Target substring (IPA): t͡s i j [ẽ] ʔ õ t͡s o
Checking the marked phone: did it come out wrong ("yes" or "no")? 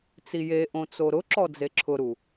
yes